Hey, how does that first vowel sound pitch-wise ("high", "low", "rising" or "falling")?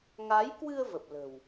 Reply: rising